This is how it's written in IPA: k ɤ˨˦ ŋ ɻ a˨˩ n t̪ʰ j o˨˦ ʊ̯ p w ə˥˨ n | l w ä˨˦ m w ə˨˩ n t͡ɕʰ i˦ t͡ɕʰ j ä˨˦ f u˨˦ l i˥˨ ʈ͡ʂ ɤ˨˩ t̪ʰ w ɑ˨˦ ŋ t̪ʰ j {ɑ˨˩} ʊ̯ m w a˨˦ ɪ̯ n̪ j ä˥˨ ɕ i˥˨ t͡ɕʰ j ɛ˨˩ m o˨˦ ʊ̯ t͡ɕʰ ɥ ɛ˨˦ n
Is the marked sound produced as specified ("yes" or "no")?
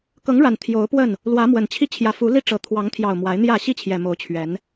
yes